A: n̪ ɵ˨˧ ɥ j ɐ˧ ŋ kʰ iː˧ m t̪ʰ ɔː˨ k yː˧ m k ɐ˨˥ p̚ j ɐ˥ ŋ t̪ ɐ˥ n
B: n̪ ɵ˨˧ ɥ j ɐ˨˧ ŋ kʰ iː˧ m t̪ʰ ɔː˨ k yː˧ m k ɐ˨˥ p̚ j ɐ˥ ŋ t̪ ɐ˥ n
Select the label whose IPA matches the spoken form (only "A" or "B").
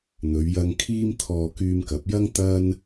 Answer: A